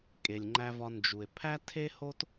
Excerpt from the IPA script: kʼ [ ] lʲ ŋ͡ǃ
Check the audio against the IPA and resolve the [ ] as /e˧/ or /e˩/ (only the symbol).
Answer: e˩